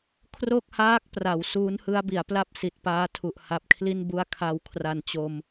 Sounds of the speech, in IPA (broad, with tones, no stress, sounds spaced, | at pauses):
kʰ r o˥˩ k̚ h aː˦˥ k̚ p r a˩˦ w s uː˦˥ n h ɯ˦˥ a̯ b i˩˦ a̯ p l a˥˩ p̚ s i˨˩ t̚ p aː˦˥ tʰ u˨˩ ʔ h a˨˩ p̚ kʰ l i˥˩ n b u˦˥ a̯ kʰ a˧ w kʰ r a˨˩ n t͡ɕ o˧ m